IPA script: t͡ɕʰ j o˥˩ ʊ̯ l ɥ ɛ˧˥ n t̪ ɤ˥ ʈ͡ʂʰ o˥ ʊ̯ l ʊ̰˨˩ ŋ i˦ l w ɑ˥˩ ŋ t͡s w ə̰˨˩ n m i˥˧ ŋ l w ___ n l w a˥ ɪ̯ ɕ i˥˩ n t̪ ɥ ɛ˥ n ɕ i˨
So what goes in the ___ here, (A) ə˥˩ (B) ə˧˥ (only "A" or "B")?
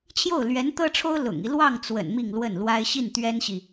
A